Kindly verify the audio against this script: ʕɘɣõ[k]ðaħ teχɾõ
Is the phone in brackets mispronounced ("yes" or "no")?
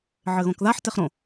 no